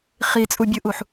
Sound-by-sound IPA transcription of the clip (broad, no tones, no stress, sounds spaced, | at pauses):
χ i t͡sʼ u bʲ ɯ ʔ u ħ